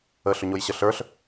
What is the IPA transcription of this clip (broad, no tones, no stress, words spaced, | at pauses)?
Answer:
əɬʏɲojɕə ɬə˞ɬ